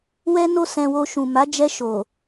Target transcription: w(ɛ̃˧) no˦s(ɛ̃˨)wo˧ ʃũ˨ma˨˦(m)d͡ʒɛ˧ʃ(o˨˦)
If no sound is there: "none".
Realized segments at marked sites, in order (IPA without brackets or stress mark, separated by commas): ɛ˧, ɛ̃˧, none, o˨